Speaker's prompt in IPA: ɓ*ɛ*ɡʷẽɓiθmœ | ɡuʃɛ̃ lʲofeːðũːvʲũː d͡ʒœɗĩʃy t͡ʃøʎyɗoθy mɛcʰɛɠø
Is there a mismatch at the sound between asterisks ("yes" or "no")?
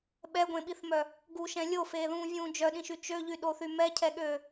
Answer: no